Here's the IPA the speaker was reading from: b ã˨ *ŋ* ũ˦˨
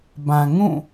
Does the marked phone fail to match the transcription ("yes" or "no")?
no